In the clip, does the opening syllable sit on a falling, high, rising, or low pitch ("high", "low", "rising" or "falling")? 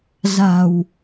low